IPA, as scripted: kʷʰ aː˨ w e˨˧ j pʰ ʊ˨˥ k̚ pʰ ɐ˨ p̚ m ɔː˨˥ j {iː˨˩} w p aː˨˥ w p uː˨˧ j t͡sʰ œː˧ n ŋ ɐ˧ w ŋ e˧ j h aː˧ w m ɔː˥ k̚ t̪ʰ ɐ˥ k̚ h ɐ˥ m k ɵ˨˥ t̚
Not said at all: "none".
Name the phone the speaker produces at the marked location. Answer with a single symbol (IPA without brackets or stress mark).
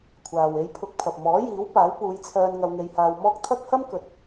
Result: iː˨˥